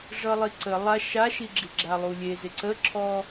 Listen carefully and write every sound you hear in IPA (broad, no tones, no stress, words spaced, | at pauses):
ʐʌlˠiǀə lˠa ʃaʃiɡ͡ǁiɡ͡ǁa lˠulʲe zɪǀəǁʰɔ